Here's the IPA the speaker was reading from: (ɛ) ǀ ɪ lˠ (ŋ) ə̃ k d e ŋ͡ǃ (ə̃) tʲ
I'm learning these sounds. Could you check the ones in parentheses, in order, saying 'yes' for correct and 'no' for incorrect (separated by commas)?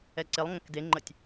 yes, yes, no